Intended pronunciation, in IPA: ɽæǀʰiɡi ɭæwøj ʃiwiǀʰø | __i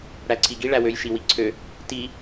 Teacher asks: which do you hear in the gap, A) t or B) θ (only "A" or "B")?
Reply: A